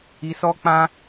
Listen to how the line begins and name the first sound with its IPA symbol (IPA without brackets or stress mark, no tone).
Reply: i